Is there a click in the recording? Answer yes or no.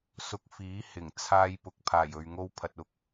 no